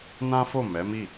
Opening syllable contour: high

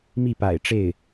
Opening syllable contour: falling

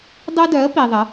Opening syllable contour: high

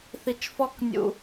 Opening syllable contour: low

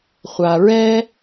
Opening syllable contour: low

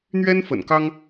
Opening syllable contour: high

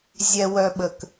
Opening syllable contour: low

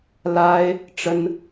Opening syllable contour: high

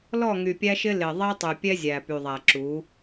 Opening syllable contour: falling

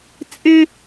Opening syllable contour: high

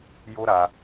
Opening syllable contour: high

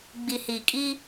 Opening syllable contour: low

